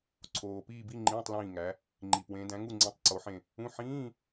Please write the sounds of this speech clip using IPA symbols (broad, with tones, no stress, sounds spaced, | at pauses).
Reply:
ǀʰ oː˨˩ p iː˦˨ b i˧˥˧ ŋ͡ǃ ĩː˧˥˧ tˤ l ĩː˦˨ ŋ æ˨˦ | ŋ͡ǃ i˨˩ p w ẽ˨˦ d æ̃˨˦ ŋ u˦˨ ŋ͡ǀ ĩ˨˦ tˤ ǀ o˨˦ ħ ẽ˦˨ | ũ˧˥˧ ħ ĩː˧˥˧